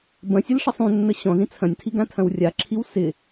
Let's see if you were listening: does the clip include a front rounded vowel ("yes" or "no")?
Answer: no